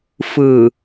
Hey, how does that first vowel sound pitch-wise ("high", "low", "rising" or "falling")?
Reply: low